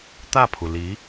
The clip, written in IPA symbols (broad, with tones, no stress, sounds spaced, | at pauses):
t̪ ä˥˩ pʰ u˩ l i˧˥